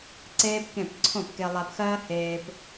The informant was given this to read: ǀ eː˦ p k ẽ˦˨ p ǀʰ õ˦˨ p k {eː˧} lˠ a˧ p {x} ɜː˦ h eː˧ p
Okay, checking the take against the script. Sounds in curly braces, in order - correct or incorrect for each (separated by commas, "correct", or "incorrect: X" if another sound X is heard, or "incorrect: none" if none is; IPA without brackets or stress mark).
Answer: incorrect: e˧, correct